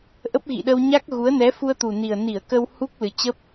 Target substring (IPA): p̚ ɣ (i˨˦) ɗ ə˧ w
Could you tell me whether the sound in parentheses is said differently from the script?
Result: yes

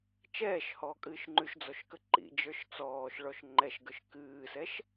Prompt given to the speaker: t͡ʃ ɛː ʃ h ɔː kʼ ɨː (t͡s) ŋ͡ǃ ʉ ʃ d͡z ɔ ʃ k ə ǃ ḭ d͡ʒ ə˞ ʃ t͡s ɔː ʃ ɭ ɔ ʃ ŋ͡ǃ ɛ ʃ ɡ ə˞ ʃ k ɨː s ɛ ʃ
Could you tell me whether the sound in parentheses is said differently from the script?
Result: yes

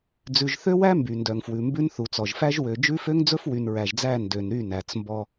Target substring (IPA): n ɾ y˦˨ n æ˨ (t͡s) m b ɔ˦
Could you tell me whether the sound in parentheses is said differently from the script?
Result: no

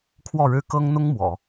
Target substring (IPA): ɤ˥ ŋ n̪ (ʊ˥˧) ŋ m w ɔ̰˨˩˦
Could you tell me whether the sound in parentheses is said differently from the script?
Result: yes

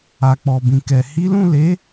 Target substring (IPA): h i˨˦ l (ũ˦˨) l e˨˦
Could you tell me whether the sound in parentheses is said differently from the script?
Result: no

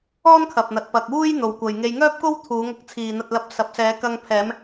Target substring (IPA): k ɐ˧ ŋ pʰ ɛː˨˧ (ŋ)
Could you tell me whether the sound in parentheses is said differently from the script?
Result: yes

